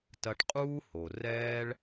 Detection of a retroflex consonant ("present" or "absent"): present